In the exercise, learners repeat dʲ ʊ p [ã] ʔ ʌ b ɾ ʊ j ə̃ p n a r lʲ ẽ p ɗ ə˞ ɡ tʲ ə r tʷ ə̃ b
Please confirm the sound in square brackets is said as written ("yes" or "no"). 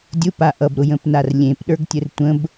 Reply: no